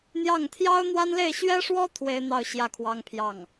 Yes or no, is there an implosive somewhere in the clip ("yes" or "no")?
no